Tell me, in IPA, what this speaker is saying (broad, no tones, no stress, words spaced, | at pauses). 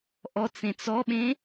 ʔɔt͡sẽt͡s ɔɓẽ